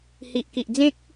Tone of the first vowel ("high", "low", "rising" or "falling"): low